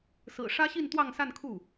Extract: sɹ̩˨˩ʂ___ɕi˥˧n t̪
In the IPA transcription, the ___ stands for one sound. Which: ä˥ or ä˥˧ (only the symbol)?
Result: ä˥